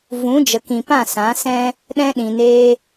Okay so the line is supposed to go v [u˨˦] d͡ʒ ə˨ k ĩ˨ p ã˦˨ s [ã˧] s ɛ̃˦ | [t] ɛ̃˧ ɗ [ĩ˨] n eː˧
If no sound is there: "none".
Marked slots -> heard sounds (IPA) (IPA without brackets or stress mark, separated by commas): ũ˨˦, ã˨˦, ɗ, ĩ˨